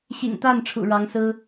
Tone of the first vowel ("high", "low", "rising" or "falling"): low